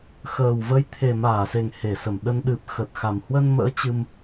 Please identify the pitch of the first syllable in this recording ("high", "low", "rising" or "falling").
low